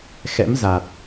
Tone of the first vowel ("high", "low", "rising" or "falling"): rising